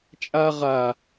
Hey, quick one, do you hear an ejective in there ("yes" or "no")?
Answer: yes